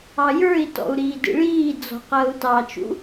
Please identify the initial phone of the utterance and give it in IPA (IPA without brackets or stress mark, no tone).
ɑ